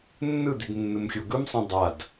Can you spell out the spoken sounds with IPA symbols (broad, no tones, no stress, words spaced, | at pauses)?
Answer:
nːɯd̪id nːɯmxʲoɡɯmsˤĩ dˤad